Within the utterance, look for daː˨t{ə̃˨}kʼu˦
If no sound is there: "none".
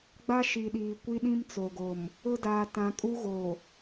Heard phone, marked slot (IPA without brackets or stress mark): ã˨